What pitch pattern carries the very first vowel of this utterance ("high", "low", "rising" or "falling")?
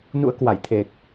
rising